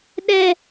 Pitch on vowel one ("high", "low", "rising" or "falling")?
high